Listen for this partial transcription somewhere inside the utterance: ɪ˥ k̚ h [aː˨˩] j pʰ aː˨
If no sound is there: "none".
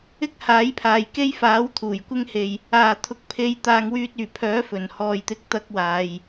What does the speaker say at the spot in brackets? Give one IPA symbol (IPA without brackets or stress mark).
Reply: aː˨˥